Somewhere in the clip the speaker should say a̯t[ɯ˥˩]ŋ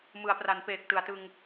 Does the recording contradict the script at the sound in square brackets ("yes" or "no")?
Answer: yes